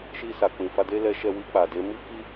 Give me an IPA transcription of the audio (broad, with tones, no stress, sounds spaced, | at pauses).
ʃ i˧ s a˨ k͡p ĩ˨ f a˧ d e˦ l ɛ˦ ʃ ɛ˧ w i˧ k͡p a˨ d e˨˦ m i˦ k i˦